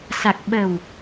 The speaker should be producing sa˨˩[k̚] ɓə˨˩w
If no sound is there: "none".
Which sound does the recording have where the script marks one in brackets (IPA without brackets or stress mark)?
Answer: k̚